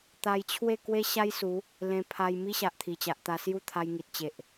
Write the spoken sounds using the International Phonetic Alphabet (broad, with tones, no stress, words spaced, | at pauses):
t̪a˧jt͡ɕʰwe˥˧ kwe˦ɕa˦jsu˨˦ | lẽ˧pʰa˧j mi˦ɕa˨ʔt̪ʰi˨˩ t͡ɕa˨ʔt̪a˧sju˦t̪ʰa˧j ŋi˨t̚t͡ɕe˨ʔ